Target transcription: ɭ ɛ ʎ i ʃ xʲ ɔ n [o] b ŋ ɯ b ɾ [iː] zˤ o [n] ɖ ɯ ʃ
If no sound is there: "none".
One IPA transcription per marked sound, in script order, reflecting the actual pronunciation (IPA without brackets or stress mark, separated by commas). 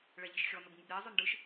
o, iː, n